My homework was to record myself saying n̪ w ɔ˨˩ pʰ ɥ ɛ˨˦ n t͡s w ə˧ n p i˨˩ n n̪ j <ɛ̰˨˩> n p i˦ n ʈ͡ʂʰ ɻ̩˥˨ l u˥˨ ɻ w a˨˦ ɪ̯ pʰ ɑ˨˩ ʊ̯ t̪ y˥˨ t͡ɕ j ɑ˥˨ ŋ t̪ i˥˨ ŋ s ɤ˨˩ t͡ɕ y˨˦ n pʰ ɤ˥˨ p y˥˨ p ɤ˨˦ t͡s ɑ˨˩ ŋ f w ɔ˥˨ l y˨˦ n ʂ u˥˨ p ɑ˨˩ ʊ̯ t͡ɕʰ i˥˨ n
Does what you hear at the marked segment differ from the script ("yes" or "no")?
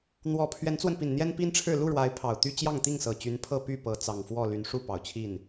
yes